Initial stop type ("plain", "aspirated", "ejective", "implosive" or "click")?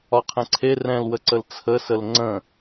aspirated